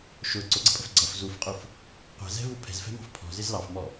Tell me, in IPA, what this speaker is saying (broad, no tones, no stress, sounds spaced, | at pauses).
ʃ ʊ ǀ ʊ ɡ͡ǀ ə̤ pʼ ə̤ f ɡ͡ǀ ʌ f z u f qʼ u f | qʷ ɛ̤ z ɛ̤ v u pʰ ɛ̤ z f ɛ̤ m ɑ̤ f pʰ ɔ̤ z ɪ z l ɑ f m ɔ